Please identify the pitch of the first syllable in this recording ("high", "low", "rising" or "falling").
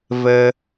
low